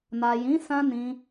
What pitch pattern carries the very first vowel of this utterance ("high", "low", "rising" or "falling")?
low